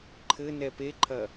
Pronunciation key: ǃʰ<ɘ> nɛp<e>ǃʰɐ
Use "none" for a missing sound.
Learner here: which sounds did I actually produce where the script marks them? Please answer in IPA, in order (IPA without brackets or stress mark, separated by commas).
ɘ, e